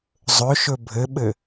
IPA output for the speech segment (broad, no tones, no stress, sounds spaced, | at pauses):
zˤ ɵ ʃ ɵ bʱ ɘ ɓ ɘ